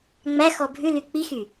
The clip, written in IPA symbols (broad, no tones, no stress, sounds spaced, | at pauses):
ŋ͡m æ x ɔ bʱ ʉ l y k͡p i x y